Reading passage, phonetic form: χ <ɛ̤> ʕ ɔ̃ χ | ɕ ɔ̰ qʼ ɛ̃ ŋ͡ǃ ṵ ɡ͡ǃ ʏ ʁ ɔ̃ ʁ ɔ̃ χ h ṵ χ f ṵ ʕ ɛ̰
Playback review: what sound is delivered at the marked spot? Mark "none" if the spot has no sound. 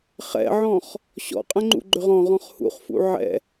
ɛ̰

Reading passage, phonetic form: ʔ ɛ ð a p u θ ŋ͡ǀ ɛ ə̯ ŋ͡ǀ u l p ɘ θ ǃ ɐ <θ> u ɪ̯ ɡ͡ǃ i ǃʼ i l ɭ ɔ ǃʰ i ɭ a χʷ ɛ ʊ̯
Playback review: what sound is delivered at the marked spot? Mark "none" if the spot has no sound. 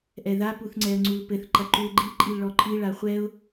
ǃ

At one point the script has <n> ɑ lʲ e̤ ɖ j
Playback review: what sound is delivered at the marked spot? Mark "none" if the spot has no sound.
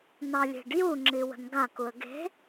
n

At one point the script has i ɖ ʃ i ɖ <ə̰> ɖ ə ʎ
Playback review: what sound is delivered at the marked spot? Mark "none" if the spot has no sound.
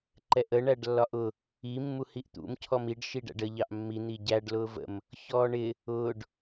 æ̰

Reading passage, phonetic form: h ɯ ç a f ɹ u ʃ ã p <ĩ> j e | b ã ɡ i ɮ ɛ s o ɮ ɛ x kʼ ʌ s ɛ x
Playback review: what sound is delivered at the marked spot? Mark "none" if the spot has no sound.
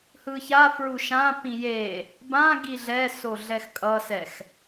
ĩ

